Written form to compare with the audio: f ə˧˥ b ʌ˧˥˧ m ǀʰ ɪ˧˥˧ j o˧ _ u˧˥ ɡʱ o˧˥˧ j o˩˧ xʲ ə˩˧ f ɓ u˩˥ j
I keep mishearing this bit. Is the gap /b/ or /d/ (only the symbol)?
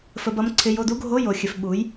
d